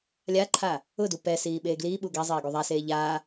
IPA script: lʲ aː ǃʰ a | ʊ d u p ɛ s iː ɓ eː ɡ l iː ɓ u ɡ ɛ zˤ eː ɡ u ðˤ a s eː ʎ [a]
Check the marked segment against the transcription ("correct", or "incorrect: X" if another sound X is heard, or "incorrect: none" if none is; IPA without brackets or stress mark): incorrect: aː